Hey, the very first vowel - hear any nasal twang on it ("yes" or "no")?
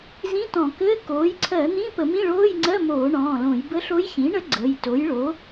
yes